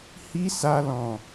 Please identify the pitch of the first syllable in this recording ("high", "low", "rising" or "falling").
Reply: high